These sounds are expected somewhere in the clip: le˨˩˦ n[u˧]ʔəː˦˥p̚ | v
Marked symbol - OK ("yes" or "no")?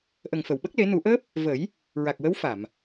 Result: no